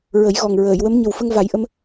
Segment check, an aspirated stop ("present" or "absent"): absent